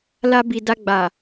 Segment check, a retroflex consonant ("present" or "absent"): absent